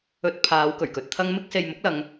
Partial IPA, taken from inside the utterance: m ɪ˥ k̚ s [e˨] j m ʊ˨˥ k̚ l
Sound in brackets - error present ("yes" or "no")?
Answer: no